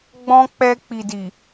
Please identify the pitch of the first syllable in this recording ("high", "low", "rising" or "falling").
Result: high